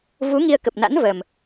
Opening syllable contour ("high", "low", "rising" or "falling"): rising